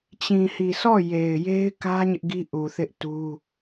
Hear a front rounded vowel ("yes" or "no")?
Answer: no